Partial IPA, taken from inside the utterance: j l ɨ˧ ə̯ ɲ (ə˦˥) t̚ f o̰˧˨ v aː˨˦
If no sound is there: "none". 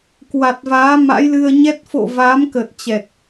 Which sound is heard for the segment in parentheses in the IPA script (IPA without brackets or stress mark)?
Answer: ɛ˦˥